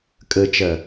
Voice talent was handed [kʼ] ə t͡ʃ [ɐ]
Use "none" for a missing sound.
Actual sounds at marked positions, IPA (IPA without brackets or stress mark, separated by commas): kʼ, ɐ